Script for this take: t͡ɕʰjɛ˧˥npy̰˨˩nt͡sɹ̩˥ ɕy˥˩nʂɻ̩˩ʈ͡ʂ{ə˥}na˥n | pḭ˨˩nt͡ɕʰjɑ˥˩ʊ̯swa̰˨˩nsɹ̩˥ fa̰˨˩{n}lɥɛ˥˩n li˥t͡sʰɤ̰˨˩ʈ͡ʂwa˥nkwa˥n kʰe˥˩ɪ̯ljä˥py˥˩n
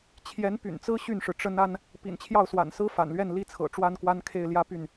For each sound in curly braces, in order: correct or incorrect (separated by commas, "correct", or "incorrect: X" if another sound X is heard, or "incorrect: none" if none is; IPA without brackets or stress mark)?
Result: correct, correct